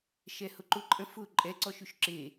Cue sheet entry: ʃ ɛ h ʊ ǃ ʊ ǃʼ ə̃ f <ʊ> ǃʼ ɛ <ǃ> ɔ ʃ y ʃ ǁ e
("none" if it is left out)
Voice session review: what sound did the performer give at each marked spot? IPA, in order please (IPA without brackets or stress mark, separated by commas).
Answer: ʊ, ǀ